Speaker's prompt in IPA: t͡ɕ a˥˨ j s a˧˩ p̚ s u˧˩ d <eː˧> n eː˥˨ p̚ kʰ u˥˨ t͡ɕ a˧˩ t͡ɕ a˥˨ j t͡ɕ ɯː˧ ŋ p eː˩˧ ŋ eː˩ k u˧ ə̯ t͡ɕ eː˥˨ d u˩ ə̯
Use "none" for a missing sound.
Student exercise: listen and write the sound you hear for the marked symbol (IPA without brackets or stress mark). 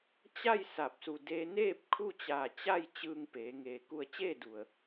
eː˧